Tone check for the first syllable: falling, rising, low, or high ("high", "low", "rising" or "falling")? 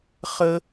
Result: high